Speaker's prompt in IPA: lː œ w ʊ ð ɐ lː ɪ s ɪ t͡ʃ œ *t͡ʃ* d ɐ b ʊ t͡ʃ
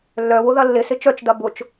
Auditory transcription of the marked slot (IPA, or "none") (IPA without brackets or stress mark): t͡ʃ